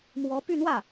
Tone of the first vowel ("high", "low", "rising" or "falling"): rising